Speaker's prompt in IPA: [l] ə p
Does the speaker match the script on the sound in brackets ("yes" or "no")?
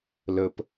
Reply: yes